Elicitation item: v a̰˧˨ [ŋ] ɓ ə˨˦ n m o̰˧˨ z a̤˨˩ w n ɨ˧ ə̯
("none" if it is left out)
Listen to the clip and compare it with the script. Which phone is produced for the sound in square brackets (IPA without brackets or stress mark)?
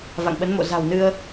ŋ